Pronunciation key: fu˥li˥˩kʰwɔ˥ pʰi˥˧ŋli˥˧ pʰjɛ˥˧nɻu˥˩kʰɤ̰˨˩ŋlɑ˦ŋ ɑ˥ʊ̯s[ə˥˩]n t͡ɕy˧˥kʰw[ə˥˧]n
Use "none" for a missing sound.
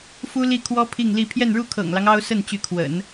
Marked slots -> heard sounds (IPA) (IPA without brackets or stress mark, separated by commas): ə˥˩, ə̰˨˩˦